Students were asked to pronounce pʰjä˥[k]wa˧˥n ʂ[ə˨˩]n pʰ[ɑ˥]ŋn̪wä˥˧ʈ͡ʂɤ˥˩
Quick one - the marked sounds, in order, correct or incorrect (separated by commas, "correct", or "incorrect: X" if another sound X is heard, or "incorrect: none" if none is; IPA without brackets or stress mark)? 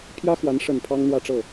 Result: incorrect: x, correct, correct